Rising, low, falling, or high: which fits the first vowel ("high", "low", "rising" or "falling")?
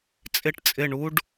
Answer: falling